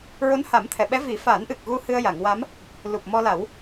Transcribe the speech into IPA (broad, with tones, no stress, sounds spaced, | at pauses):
ɹ o˧˥ n h a˨˩˦ m t̪ʰ ɛ˨˩˨ ɓ ɛ˧˥ v i˨˩˦ f a˨˩˦ n ʔ ɨ˨˩ k̚ ɣ u˧ h ɨ˧ ə̯ j a˨˩˨ ŋ w a˧˥ m | l u˨˩ p̚ m ɔ˧ l a˨˩˦ w